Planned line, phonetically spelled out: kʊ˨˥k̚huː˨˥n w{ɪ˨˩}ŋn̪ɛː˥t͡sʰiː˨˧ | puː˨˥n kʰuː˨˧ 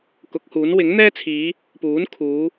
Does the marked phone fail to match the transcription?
yes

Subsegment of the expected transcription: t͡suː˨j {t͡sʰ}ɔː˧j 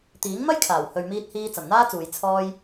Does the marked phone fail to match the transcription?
no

